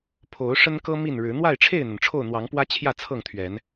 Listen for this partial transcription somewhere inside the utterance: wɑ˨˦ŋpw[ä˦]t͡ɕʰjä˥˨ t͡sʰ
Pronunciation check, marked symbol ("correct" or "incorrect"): correct